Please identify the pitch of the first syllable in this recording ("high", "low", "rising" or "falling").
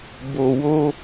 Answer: low